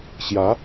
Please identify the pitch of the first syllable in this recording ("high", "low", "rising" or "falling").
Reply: rising